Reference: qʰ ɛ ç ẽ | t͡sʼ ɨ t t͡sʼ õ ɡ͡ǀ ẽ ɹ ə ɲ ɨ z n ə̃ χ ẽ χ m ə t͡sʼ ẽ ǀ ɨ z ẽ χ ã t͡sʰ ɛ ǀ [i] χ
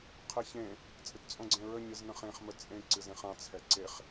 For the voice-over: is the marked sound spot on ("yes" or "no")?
no